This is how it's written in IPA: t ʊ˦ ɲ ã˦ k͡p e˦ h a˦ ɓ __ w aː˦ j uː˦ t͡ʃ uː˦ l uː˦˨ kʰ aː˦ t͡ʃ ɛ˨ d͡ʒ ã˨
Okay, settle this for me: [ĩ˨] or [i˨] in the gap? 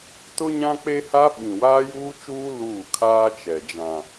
ĩ˨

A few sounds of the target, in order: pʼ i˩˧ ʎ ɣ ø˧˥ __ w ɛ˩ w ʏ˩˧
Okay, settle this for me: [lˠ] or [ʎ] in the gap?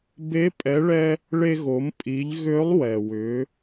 lˠ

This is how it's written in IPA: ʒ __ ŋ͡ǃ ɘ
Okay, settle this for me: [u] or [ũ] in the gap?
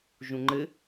ũ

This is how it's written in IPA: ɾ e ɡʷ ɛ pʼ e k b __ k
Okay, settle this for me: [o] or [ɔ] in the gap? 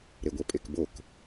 o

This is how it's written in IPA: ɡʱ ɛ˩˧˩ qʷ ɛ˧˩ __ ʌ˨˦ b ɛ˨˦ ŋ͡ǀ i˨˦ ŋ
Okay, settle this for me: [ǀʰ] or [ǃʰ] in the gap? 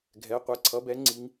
ǀʰ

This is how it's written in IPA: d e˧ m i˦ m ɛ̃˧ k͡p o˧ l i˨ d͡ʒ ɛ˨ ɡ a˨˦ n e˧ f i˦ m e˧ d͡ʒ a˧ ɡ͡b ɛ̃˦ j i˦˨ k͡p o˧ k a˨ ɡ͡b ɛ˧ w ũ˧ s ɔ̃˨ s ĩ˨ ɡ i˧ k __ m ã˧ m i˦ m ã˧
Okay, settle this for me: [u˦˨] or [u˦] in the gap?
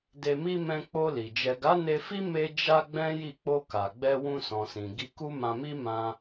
u˦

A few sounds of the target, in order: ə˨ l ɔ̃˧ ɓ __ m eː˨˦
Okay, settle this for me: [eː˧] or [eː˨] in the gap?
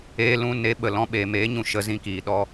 eː˨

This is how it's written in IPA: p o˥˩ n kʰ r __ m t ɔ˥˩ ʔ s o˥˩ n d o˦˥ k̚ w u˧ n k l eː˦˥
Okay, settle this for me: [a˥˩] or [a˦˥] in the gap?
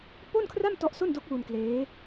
a˥˩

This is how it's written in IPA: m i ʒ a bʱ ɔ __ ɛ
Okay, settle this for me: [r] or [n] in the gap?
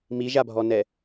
n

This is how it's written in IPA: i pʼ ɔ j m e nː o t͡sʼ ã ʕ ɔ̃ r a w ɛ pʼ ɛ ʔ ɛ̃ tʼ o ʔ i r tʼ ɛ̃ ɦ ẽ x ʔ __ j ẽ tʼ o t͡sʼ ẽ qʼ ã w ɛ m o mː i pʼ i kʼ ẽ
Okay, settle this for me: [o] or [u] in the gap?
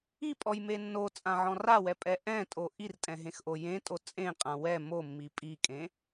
o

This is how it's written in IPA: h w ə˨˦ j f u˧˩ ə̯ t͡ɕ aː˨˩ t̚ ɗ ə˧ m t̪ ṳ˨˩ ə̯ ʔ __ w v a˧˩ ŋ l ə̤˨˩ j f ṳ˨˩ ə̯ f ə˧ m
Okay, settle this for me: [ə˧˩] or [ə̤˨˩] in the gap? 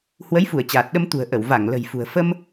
ə˧˩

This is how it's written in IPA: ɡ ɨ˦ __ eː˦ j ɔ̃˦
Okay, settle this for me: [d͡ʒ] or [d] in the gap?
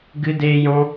d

